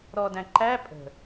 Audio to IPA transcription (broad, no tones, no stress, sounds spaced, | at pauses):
ɾ ɔ d æ̃ ǃ æ pʼ ə̤